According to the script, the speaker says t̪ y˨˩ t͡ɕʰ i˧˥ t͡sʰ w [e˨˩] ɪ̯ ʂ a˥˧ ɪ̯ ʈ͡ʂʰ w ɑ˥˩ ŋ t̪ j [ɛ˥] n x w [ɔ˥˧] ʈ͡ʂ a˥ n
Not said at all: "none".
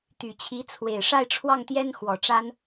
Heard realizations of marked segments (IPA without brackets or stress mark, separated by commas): e˨˩, ɛ˥, ɔ˨˩